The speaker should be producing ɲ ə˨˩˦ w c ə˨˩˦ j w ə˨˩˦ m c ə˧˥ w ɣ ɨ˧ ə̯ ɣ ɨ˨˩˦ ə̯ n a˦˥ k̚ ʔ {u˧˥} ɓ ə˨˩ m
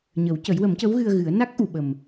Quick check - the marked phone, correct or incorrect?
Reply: incorrect